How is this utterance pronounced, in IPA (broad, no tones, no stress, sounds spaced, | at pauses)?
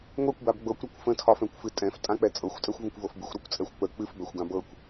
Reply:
ŋʷ ɛ kʷ b a b ɡ͡b ɤ kʷ ɾ ɒ kʷ f ə̃ tʰ ɒ f ɛ̃ kʷ f ɨ tʼ ɛ̃ f tʼ ã k͡p ɛ t͡sʼ ɤ xʷ tʼ ɛ xʷ v ə̃ kʷ v ɤ f b ɨ xʷ ɾ ɤ kʷ t͡sʼ ɛ xʷ k͡p ə k͡p ɨ f b ɛ xʷ ɡ ã b ɤ kʷ